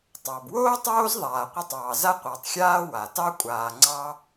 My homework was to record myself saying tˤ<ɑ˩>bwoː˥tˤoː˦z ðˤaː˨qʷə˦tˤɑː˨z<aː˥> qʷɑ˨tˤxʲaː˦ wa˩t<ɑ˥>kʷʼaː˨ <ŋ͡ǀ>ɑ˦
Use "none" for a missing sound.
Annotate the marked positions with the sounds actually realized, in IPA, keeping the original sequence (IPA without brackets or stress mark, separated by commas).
ɑ˩, a˥, ɑ˥, ŋ͡ǀ